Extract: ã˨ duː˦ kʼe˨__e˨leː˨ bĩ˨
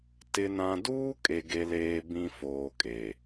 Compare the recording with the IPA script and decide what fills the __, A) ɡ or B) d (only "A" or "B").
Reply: A